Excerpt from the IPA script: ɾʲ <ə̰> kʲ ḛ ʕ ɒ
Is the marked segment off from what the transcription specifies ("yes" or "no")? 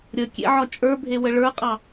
yes